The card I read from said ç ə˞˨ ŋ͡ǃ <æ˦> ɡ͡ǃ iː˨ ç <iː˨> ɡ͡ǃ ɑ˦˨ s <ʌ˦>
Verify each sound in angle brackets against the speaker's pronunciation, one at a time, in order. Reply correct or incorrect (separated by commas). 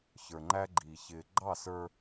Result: correct, incorrect, incorrect